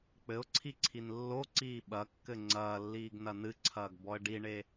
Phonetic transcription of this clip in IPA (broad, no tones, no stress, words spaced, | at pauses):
k͡pɘʊ̯ǀʰiǀʰin lːoǀiː ɓɐkːɘ ŋ͡ǀɐːlːiːɡnɐ nɨǀʰɐːɡbɔə̯ ɖiɳe